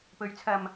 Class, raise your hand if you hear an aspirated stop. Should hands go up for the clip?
yes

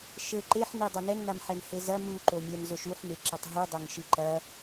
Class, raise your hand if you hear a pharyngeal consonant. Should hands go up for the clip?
yes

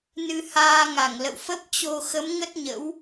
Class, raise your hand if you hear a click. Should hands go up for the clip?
no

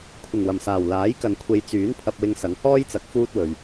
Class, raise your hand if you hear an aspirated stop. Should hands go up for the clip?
yes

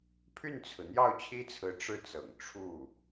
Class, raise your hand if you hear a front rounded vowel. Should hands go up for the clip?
yes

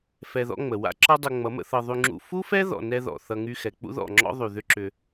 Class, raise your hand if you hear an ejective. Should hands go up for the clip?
no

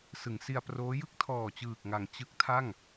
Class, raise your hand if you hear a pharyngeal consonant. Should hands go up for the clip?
no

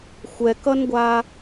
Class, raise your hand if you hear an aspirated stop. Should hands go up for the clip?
no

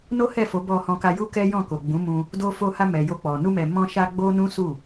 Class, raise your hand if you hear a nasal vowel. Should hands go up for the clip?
yes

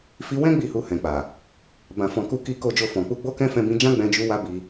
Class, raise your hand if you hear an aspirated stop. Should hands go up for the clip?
no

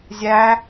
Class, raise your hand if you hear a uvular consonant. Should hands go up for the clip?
no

